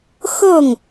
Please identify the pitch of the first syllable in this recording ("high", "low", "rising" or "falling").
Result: falling